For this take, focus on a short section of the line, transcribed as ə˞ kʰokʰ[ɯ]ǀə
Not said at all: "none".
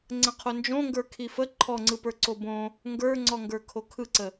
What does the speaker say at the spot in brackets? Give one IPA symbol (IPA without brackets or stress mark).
ɯ